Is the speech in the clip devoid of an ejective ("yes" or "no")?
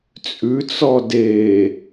no